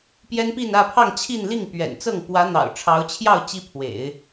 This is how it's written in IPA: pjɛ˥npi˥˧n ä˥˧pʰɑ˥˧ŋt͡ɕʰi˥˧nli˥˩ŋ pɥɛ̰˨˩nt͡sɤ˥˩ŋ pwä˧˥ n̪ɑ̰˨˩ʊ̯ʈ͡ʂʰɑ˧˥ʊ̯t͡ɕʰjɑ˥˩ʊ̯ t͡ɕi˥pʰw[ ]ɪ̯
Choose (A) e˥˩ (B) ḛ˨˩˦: B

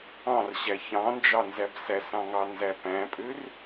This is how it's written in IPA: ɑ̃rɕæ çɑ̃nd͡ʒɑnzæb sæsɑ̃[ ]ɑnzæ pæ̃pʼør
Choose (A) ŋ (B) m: A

